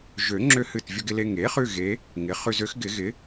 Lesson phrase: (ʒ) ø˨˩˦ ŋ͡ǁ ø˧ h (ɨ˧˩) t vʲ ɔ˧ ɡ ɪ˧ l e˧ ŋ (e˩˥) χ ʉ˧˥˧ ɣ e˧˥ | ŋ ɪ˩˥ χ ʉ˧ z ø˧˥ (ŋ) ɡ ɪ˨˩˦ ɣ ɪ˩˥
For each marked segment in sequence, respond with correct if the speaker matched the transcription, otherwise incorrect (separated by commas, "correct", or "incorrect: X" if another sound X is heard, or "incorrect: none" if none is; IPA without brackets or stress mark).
correct, correct, correct, incorrect: x